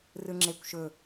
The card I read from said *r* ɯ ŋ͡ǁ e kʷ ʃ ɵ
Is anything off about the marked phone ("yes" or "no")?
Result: no